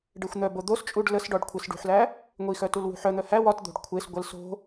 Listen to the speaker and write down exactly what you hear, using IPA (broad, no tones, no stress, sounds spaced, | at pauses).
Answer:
ɖ e xʷ n̪ œ b o d̪ o s t͡ʃʼ u ɖ l ə s ɖ ɔ ɖ kʷʰ e s ɖ ṳ ħ l æ | ŋʷ i x œ t u l w ṳ ħ œ n̪ œ h æ w ɒ t d̪ o̤ ɖ kʷʰ e s ɡʷ ə l s o̤